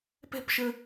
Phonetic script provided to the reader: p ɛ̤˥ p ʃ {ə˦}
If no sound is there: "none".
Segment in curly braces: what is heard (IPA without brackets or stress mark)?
ə˦